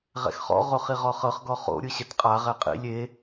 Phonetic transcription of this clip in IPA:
ʁɛ̰xχɔ̰ ʁoχiʁɔχɤχ ɡɔχo̰ ɾʲɯɕɛtqʼa ʁɛqʼḭ lʲe

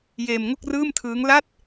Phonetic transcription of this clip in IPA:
jeː˧mŋo˥˩k̚ rɯː˥˩mtʰɯː˦˥ŋ la˥˩t̚

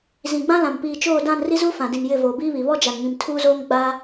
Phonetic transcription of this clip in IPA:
zĩ˨ɡ͡bã˦lã˨m piː˨t͡ʃoː˦˨dã˦˨n ri˦zuː˦ fã˨dĩ˨n jɪ˦˨voː˨biː˦βi˨ βɔ˦ d͡ʒa˨nŋĩ˨m tʰuː˦zoː˦ŋ ɡ͡ba˦

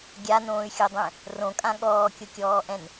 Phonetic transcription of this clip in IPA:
ɡʲanõːy̯xʲodˤɛ̃ | rõkʼã ɠɔːkʲokʲɔːʔɛ̃n

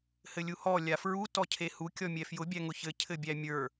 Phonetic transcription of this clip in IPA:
hɘlʲuhɔ lʲafɹu tɔcʰehu kʲɔmʲɛfjʊ bʲæŋʊçɘ cʰɘbʲæmʲə˞

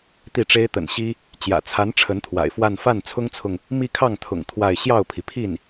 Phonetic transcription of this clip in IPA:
t̪i˥˩ʈ͡ʂe˥ɪ̯t̪ə̰˨˩n ɕi˥ | t͡ɕjä̰˨˩t͡sʰa˧˥n ʈ͡ʂʰə˧˥nt̪ʰwa̰˨˩ɪ̯fwa˥˧n fa˥˩nt͡sʰʊ˥ŋt͡sʰʊ˨ŋ | mi˥˧kʰɑ˥˩ŋt̪ʰʊ̰˨˩ŋ t̪ʰwa˥˧ɪ̯ ɕjɑ˥˩ʊ̯pʰi˩pʰi˥˩n

